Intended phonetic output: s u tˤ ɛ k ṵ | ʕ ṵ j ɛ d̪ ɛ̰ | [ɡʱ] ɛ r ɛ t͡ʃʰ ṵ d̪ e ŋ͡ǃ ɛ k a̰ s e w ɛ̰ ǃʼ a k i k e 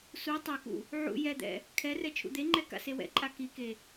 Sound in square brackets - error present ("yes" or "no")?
yes